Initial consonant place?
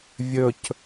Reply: labial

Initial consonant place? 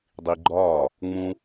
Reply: alveolar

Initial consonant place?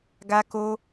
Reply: velar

